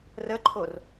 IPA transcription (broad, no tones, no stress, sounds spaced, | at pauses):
r ə ǃʰ o r